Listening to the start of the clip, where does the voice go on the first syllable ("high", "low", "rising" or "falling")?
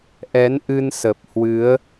rising